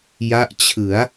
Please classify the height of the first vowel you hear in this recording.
low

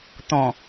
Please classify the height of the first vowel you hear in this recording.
mid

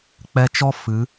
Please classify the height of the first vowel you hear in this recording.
mid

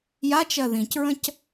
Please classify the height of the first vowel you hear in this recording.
low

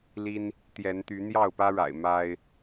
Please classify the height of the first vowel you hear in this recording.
high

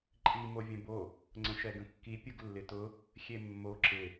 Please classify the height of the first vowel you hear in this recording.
high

